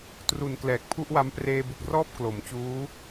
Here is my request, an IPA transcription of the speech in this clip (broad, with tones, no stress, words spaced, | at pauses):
tru˨˩nklɛː˨˩k̚pʰu˥˩ʔwa˦˥m preː˧bu˨˩k̚rɔː˥˩p̚ klo˩˦mt͡ɕuː˦˥